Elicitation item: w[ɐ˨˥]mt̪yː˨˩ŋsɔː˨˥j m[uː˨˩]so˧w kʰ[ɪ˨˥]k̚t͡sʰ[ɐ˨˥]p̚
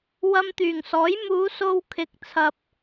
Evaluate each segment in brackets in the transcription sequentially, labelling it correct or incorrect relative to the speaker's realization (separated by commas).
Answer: incorrect, incorrect, incorrect, incorrect